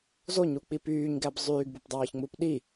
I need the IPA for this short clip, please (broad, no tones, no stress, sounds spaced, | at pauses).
z o ɲ u k͡p i p yː ɲ ɡ æ b zˤ yː ɡ b u p dˤ ɑː ç ŋ͡m u p ɗ i